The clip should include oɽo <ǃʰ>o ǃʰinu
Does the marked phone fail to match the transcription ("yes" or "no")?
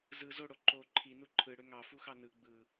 yes